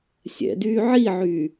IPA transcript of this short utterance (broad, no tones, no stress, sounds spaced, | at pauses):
sʲ ɛ̰ d yː ʕ i ʕ yː